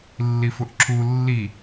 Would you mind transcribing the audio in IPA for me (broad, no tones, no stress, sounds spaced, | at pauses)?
lː i f ʊ ʔ ǁʰ u lː i